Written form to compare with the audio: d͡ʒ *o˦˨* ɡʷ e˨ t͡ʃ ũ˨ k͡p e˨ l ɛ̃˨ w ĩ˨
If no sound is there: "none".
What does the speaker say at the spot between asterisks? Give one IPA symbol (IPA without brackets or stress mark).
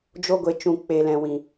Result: o˧